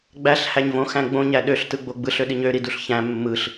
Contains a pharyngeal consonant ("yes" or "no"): no